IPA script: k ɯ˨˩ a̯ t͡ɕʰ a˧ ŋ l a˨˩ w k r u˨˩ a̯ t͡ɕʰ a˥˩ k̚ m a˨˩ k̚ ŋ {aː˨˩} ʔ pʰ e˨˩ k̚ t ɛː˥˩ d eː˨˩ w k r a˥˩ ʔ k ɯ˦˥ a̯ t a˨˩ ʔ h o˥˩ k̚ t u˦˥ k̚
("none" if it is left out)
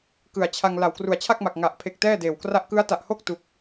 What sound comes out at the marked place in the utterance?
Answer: a˨˩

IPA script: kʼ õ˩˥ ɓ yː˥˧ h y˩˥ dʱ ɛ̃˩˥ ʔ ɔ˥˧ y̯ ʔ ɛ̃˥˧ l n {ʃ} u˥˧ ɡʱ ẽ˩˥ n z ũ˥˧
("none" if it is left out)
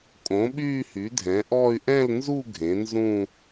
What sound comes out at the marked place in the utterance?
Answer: z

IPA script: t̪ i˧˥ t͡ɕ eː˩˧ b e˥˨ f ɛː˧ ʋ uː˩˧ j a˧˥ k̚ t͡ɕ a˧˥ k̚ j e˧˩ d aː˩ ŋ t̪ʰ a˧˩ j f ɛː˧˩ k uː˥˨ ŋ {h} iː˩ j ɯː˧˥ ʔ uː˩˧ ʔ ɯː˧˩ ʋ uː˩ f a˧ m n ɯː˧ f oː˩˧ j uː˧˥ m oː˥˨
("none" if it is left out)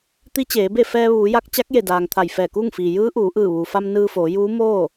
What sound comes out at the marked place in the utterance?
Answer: f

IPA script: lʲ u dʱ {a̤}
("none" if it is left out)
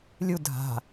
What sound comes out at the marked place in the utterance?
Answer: a̤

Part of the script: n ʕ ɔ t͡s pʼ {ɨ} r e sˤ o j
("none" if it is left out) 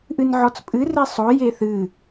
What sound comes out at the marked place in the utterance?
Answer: ɨ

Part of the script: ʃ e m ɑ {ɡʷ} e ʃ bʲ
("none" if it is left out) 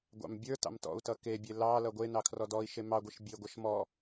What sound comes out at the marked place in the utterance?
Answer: ɡʷ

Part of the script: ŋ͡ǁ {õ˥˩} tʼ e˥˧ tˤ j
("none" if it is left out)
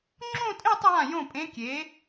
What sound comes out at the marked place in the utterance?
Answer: õ˥˧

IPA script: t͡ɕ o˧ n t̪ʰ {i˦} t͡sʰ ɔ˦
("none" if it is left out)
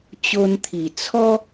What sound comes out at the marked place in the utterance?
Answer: i˨˩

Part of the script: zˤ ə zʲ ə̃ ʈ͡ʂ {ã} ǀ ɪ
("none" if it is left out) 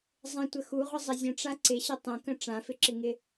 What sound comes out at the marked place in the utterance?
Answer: a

